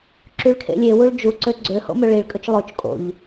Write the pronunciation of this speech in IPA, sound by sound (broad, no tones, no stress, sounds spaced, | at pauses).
ǁ y ɭ kʰ ḛ lʲ e w u ɭ d͡ʒ u ǀ ø ɡ͡ǀ ø h o̰ m ø ɭ i ɭ kʼ ɵ t͡ʃ lˠ o t͡ʃ kʼ o̰ ʎ